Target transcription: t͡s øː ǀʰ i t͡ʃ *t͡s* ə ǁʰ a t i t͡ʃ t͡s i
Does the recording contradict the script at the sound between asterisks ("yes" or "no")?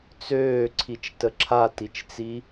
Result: yes